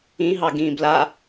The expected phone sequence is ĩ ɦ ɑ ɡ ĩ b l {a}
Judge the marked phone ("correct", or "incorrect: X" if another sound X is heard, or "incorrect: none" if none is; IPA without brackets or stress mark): correct